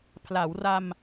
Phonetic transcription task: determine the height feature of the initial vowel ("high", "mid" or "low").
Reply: low